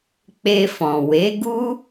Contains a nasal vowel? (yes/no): yes